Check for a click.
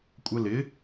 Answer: absent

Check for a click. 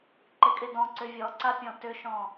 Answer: present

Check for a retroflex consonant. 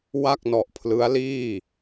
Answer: absent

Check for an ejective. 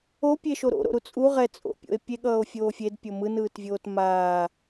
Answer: present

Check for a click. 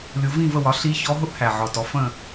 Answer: absent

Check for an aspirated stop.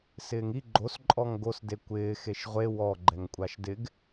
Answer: absent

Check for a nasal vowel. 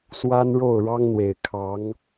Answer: absent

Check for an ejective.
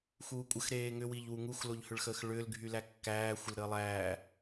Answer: present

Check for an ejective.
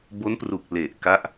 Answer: absent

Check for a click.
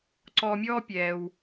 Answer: present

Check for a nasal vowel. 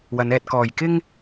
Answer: absent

